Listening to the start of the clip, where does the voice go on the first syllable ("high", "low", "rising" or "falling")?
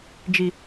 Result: low